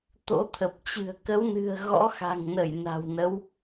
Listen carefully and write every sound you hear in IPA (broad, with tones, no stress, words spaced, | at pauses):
t̪o̰˧˥t̪ʰə˨˩p̚t͡ɕɨ̤˨˩ə̯ kə˨˦wnɨ̤˨˩ə̯ ɣɔ̰˧˥xa̤˨˩ŋnə˧˩j na̤˨˩wnə˨˦w